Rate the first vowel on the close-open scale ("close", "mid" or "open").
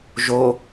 mid